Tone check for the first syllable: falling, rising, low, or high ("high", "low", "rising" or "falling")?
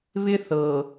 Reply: high